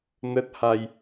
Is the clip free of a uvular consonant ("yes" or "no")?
yes